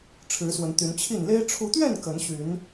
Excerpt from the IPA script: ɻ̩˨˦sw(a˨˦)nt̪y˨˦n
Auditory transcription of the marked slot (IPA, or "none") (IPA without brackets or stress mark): ə˨˦